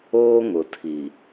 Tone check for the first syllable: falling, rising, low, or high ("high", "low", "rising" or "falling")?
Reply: high